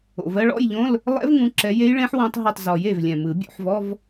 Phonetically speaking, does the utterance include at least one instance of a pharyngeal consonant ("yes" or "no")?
yes